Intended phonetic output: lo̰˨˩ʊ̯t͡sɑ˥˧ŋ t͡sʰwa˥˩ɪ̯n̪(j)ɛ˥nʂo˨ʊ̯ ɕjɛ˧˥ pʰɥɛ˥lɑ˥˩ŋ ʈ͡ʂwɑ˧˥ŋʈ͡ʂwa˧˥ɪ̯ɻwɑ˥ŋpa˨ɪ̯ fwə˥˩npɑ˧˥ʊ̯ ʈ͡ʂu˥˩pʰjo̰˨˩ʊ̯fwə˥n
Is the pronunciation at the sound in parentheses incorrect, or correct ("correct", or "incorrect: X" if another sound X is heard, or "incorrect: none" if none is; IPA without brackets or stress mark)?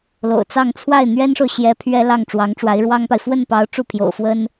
incorrect: ɥ